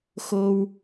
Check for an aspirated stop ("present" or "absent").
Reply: absent